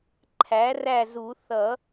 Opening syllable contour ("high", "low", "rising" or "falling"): rising